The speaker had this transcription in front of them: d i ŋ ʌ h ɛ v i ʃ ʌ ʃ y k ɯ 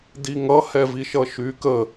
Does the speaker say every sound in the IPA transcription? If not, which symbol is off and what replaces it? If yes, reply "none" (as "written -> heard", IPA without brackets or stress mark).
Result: ɯ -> ə